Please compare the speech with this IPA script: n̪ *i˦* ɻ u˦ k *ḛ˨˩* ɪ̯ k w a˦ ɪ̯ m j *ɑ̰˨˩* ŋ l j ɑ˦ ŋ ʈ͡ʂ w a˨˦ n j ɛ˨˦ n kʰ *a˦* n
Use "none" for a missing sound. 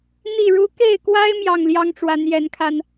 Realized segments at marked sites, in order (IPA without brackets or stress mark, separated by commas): i˥˨, e˥˨, ɑ˥˨, a˧